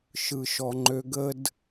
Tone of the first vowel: high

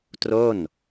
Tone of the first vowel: falling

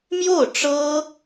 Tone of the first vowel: falling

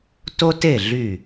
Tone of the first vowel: high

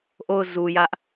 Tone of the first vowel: falling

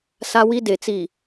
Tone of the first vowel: high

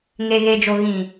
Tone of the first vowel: low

